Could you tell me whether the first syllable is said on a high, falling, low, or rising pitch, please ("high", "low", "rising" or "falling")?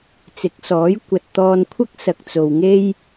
rising